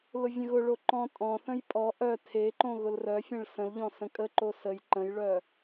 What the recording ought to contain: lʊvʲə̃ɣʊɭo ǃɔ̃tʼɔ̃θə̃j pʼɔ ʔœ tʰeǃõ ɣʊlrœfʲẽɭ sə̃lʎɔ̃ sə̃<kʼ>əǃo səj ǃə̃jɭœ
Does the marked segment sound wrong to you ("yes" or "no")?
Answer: no